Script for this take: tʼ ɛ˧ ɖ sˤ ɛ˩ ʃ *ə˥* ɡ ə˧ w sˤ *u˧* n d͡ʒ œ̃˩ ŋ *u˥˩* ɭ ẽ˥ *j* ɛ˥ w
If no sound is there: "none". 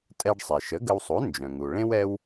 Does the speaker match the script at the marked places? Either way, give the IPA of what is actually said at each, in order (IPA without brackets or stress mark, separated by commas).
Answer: ə˩˥, u˩˥, u˩, w